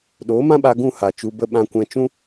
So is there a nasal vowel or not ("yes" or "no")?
yes